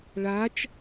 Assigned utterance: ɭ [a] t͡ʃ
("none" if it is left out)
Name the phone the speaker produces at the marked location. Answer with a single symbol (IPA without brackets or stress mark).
a